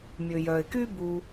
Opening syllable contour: low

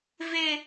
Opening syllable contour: high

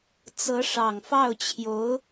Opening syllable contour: rising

